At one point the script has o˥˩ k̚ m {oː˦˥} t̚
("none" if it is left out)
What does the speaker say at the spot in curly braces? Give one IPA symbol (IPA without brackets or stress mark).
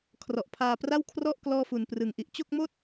oː˥˩